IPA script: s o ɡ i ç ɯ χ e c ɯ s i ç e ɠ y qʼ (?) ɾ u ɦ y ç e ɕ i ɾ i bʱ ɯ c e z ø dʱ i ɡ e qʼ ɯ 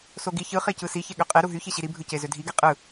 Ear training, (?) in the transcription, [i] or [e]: e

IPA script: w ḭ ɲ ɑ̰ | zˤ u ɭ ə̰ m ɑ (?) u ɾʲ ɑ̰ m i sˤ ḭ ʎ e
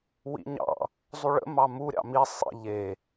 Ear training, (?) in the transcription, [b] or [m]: m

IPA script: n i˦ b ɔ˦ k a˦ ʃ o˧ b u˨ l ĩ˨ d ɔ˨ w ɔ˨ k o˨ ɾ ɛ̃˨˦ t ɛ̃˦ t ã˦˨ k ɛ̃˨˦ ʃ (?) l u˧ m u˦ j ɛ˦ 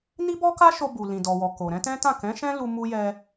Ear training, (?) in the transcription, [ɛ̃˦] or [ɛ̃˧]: ɛ̃˦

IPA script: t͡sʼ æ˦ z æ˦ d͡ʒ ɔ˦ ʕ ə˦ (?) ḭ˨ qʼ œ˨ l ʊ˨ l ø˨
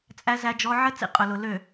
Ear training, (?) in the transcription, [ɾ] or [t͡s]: t͡s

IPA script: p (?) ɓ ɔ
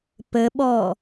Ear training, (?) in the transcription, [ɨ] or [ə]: ə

